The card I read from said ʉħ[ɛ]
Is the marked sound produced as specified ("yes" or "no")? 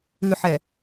yes